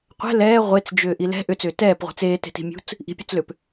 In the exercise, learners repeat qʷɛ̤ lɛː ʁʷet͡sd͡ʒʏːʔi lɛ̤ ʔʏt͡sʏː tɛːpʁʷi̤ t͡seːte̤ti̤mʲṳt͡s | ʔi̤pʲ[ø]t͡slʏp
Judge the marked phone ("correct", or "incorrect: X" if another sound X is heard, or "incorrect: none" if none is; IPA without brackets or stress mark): correct